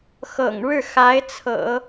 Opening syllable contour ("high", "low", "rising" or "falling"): low